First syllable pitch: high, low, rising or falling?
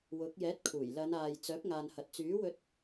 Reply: rising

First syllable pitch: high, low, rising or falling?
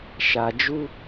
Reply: low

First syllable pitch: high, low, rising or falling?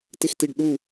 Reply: falling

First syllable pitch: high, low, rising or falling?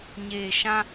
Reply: low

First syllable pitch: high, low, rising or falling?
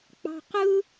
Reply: low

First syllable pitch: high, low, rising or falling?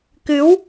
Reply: rising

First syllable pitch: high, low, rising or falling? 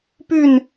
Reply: falling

